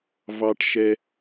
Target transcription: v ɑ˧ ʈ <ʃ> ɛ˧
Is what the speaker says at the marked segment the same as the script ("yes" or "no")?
yes